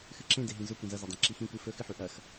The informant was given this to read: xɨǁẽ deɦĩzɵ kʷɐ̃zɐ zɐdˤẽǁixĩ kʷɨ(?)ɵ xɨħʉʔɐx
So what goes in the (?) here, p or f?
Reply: f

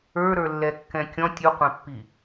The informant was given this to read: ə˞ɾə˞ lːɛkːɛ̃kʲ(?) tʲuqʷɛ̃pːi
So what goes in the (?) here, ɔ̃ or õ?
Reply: ɔ̃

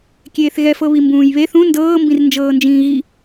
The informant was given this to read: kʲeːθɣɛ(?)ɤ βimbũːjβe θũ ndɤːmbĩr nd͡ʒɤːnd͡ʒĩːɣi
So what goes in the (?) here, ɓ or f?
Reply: f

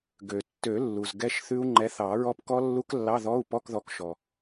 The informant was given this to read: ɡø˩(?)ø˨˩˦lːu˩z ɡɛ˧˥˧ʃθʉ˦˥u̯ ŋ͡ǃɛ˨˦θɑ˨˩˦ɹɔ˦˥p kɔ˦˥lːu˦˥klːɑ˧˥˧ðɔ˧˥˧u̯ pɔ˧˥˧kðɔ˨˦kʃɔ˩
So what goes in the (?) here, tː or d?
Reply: tː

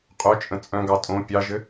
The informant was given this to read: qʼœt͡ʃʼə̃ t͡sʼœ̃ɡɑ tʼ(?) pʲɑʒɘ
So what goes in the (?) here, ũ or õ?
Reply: õ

